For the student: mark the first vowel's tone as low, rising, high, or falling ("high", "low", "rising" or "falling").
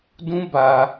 high